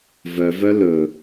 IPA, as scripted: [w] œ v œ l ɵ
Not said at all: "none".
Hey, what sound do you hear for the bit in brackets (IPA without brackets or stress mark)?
v